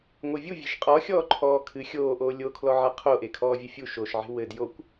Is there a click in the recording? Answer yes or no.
yes